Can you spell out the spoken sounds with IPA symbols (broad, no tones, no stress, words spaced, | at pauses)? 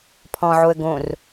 pʰɔ̃ʕoə̯ ɡõr